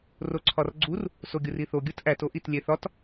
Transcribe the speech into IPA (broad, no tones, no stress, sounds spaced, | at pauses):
r o ǀʰ ɒ r ɡ͡ǀ u r | s o ɡʲ u r i θ o ɡʲ u t ʔ æ t o ʔ i t lʲ e θ ɒ t